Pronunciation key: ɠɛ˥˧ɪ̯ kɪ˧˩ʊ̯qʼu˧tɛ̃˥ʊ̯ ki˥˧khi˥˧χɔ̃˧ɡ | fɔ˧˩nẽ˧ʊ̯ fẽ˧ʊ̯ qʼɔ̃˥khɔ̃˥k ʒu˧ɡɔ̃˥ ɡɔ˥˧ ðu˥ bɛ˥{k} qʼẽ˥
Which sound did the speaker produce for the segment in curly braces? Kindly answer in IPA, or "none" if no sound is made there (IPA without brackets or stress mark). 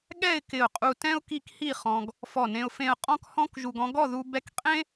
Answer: k